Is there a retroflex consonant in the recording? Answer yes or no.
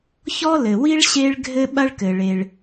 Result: yes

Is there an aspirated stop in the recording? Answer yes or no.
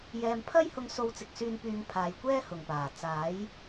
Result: yes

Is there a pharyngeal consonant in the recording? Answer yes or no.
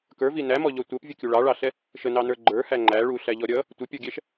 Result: no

